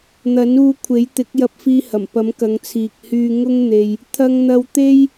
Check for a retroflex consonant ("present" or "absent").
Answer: absent